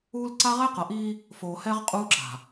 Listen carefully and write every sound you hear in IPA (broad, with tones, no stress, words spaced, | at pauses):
uː˦l ǀa˦ʁɛ˦qʌ˨ʔiː˦ | foː˨hɛ˦ʁ qʼuː˦ǁa̤˨